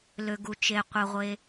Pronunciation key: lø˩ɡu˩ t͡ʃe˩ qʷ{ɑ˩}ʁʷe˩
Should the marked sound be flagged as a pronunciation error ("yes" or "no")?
yes